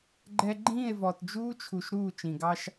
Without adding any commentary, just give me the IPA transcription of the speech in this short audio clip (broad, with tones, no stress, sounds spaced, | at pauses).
ɡ͡ǃ ɛ˦ ɡ͡ǃ ĩː˦˨ e̯ v ɔ˨ t d͡ʒ uː˦ t͡ʃʰ u˨ ʃ ɾ uː˦˨ t͡ʃ ĩ˨ ɡ ɑ˦ ʃ